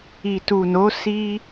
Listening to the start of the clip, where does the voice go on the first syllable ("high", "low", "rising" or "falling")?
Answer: low